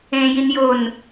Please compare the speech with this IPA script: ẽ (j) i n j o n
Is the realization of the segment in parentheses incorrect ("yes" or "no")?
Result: no